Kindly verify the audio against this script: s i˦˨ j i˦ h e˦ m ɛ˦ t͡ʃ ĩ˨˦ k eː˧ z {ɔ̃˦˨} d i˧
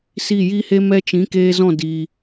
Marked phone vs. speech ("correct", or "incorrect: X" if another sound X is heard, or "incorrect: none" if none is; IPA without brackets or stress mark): correct